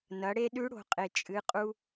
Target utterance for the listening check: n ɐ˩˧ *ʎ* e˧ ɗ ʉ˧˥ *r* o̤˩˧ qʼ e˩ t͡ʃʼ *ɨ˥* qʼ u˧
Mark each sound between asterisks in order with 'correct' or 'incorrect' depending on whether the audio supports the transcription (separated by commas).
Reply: incorrect, incorrect, incorrect